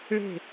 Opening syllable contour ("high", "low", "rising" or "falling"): falling